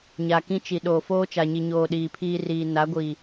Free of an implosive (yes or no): no